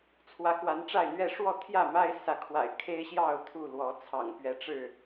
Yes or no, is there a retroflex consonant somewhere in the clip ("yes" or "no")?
yes